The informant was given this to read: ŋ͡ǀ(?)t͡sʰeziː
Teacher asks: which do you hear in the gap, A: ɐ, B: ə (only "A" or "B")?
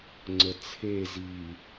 B